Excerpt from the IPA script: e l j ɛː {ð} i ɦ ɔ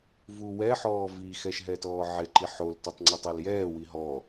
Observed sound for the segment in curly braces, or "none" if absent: w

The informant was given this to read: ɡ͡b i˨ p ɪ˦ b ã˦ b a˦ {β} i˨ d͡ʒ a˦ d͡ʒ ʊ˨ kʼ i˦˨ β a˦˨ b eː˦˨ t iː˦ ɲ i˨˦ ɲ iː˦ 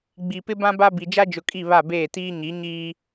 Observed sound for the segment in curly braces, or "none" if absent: b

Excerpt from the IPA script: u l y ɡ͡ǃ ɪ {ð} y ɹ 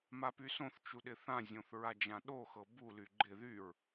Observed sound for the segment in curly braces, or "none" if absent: ð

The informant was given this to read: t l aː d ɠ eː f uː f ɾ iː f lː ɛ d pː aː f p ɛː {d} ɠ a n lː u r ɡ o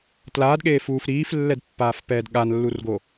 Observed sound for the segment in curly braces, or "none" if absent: d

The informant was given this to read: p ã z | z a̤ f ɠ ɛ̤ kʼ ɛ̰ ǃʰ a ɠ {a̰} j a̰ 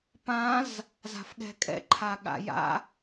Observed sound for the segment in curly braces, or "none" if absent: a̰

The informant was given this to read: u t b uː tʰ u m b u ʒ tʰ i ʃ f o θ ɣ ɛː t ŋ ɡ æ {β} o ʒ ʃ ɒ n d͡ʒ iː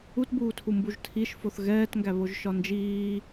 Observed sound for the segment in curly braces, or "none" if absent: β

